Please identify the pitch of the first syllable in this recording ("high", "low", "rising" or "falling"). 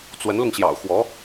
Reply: rising